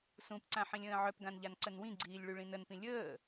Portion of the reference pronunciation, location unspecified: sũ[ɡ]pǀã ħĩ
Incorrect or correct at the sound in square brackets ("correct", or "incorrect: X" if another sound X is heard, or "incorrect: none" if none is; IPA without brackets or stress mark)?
incorrect: none